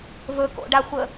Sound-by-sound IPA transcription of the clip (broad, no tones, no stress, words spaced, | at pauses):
vɵko̰ɖaxʷə